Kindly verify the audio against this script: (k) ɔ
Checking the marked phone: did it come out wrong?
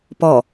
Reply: yes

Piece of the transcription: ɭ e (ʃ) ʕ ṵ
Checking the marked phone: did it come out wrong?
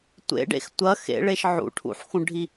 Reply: no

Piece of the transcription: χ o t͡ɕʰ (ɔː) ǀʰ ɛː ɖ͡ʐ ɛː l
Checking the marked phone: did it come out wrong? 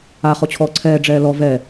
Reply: no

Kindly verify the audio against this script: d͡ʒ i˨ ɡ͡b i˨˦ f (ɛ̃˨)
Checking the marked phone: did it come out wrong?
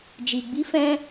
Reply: yes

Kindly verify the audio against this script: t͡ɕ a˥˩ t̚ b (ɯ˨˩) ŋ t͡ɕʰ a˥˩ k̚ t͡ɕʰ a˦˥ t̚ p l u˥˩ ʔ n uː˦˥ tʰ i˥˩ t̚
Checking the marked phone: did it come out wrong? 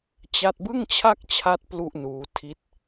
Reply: yes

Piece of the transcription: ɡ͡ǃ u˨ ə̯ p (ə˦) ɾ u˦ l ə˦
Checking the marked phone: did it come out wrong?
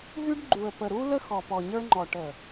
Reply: yes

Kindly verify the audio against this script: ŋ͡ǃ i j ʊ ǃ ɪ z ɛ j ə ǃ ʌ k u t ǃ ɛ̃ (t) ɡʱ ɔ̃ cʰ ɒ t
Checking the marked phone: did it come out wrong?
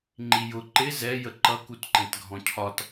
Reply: no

